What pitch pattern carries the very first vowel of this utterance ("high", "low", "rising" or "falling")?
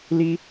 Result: high